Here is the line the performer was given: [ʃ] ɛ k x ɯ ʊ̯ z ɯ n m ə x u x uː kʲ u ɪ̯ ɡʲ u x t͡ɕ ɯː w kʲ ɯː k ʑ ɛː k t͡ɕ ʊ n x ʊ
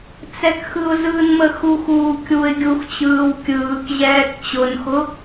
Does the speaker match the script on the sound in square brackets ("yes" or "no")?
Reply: no